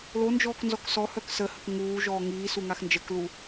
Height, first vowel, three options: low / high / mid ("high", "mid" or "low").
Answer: mid